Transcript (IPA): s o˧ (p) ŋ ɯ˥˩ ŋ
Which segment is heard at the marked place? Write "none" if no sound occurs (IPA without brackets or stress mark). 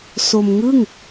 m